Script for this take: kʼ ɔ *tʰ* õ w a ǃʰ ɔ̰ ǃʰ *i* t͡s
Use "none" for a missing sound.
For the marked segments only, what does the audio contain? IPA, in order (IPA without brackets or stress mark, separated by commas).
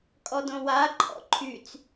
d, y